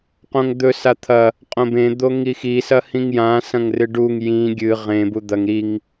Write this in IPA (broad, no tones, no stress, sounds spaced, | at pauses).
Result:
q õ ŋ d̪ ɵ s a t̪ʰ ɐ | qʼ õ b ẽ d̪ o ŋ i x i s ɐ h ĩ ŋ j ã s ɐ̃ ŋ r ɨ ɖ u ŋ j ĩ ɡʲ ɨ ʁ ẽ b u d̪ ɐ ŋ ɾ i ŋ